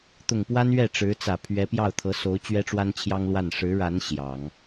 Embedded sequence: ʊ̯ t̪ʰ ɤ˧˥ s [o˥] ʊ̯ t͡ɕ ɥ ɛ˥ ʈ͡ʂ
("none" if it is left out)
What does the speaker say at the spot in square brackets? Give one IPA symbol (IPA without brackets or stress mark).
o˧˥